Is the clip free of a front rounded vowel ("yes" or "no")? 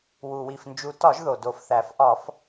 yes